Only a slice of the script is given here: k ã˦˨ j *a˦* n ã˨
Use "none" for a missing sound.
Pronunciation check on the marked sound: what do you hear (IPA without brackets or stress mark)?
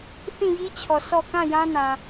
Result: ã˦